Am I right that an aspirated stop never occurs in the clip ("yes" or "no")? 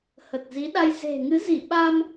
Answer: yes